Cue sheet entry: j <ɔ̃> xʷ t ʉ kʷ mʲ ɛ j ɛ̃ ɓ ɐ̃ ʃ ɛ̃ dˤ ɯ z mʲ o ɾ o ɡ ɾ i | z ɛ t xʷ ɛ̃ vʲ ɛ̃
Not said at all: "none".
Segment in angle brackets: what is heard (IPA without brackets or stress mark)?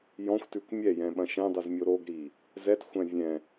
ɔ̃